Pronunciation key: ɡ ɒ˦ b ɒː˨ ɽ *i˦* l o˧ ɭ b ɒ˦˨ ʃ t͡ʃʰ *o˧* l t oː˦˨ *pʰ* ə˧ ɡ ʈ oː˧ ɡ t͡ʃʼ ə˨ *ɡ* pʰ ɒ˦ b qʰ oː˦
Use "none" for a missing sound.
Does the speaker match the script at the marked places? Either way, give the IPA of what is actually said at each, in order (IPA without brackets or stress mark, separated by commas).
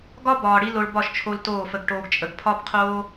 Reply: i˦, o˧, f, ɡ